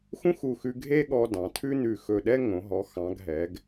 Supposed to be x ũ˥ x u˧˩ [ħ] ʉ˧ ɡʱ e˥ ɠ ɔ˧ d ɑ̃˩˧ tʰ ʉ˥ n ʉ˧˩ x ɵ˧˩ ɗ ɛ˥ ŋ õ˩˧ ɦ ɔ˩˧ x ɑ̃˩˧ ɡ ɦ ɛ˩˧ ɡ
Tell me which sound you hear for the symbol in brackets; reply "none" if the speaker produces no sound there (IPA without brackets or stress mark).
x